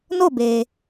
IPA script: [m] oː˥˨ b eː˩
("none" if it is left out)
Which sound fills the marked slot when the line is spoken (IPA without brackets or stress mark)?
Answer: n